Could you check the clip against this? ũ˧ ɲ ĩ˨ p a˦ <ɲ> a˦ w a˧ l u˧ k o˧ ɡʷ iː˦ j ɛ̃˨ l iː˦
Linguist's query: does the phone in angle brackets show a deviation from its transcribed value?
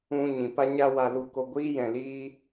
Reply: no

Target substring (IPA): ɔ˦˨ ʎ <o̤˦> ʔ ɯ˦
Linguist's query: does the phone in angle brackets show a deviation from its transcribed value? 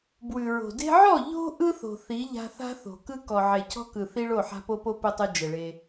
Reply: no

